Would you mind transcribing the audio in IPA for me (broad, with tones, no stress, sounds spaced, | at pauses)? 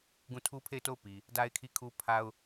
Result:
ɡ ũ˦˨ tʰ u˦ pʰ e˦˨ ɪ̯ t o˦˨ ʊ̯ p i˨ | d a˦ ɪ̯ kʰ i˦˨ kʰ u˦ pʰ a˦ ʊ̯